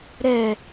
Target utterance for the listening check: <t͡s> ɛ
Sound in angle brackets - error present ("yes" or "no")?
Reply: yes